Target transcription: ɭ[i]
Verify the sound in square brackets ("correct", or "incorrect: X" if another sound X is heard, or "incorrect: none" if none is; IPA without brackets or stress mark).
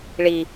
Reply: correct